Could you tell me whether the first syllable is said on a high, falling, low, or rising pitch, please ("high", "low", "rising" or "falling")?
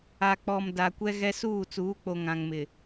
low